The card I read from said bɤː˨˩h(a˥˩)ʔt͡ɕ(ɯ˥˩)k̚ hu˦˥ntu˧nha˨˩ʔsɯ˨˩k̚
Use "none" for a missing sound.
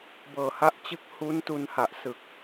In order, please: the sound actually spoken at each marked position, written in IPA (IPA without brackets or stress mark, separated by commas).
a˥˩, ɯ˥˩